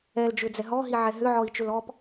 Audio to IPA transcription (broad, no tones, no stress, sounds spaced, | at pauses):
ɛ l d͡ʒ ʏ d͡z ɛ ɦ ɔ ɦ i ʕ ɛ ɦ ʏ ʕ ɔ i̯ t͡ʃ ʏ l ɔ p